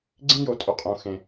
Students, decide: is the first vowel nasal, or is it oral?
nasal